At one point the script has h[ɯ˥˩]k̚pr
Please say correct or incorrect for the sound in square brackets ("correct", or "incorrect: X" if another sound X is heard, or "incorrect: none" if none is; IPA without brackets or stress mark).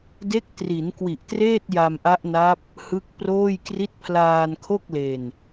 incorrect: ɯ˦˥